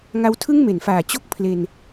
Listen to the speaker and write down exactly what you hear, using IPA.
ŋ a˦˥ w tʰ ɯ˥˩ ŋ m e˩˦ n f aː˨˩ t͡ɕ o˥˩ k̚ pʰ l e˧ n

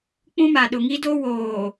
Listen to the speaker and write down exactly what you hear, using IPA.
k͡p ũ˦ m a˨ ɗ ʊ˨ ŋ i˦ d o˦ w oː˨

